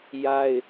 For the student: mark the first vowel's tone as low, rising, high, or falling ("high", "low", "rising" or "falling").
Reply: high